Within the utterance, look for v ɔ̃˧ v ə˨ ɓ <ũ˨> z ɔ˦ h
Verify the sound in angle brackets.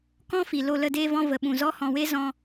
correct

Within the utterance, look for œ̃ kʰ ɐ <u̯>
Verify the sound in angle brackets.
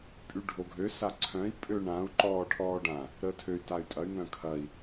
incorrect: i̯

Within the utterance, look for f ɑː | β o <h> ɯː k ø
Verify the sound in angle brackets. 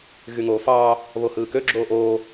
correct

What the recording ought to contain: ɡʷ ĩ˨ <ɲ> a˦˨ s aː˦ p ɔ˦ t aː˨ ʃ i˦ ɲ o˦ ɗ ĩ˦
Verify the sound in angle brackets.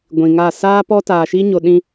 incorrect: ŋ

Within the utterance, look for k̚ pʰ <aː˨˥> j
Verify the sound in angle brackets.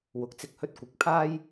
incorrect: aː˥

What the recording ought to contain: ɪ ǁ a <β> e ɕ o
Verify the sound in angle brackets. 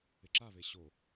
correct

